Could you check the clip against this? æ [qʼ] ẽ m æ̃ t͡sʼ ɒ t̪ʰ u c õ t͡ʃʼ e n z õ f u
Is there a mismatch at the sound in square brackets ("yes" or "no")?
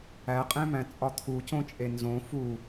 no